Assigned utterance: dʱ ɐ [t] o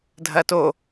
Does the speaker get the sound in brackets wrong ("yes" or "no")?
no